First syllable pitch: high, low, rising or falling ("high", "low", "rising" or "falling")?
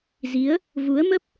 rising